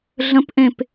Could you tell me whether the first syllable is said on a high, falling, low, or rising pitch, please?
rising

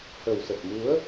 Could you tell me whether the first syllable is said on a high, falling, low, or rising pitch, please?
low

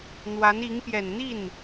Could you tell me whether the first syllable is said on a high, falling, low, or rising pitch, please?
rising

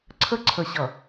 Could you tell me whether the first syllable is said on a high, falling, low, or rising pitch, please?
high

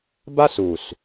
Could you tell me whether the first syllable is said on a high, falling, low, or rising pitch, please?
high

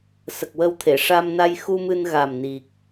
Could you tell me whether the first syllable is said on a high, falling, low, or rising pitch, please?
low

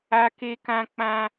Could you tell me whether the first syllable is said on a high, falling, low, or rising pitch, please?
high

